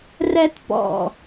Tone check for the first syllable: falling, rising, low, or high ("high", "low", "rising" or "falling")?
high